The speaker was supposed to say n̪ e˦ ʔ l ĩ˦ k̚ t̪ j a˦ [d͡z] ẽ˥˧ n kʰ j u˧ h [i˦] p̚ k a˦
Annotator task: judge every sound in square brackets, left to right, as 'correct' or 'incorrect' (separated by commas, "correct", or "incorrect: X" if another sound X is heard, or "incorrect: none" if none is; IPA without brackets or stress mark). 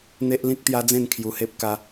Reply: correct, incorrect: e˦